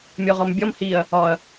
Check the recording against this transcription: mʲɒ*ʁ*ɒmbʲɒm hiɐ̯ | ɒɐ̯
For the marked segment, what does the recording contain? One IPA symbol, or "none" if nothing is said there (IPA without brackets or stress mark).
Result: ʁ